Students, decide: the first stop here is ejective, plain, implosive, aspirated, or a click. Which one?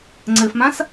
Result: click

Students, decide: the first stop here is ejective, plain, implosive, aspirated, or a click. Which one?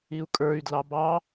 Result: ejective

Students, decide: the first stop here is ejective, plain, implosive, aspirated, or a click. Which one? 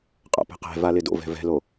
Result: ejective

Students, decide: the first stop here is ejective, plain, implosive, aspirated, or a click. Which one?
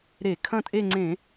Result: aspirated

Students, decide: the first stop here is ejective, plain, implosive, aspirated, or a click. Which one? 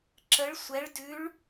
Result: click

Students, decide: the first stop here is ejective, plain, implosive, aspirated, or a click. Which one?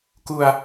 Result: plain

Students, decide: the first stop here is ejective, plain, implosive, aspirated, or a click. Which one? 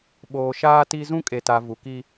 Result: implosive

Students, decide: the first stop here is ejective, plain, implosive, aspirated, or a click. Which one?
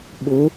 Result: implosive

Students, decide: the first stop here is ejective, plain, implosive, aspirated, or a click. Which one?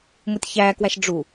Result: plain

